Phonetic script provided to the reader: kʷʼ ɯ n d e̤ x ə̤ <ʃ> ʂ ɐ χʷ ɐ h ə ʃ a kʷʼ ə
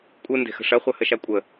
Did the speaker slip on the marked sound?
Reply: yes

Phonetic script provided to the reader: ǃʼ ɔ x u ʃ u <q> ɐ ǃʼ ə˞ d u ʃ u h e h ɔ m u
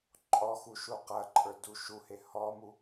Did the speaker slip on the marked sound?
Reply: no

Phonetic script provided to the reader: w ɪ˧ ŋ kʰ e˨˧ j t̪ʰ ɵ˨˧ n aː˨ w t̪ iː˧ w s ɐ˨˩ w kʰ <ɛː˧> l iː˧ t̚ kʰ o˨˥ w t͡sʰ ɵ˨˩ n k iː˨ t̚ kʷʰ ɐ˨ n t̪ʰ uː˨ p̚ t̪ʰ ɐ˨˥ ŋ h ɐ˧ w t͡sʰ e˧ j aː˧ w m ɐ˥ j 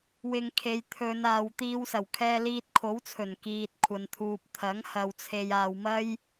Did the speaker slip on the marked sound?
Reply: no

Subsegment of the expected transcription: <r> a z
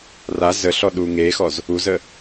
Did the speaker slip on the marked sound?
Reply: no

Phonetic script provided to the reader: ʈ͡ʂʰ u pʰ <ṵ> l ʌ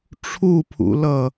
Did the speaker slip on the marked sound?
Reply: no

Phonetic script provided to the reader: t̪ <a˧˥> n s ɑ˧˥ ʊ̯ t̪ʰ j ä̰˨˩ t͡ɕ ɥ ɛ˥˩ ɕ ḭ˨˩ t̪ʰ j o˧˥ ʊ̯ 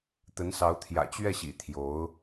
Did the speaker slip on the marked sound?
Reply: yes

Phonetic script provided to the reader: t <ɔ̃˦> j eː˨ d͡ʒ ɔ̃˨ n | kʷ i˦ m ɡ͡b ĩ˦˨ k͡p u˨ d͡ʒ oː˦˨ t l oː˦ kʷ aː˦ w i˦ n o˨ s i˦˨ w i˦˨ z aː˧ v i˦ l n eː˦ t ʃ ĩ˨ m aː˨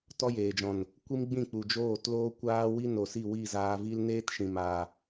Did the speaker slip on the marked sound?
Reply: yes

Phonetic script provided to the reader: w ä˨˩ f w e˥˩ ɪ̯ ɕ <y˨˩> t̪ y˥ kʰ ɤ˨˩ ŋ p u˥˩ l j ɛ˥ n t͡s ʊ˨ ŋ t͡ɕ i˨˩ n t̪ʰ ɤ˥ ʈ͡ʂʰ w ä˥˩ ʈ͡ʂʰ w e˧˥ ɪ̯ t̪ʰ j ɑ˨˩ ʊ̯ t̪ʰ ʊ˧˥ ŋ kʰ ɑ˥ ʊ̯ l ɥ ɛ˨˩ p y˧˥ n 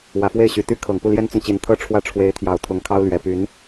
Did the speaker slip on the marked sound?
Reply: no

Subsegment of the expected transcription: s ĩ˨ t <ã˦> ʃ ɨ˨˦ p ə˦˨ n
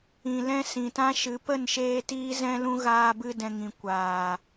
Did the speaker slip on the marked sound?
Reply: no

